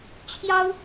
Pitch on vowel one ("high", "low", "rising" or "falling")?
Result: high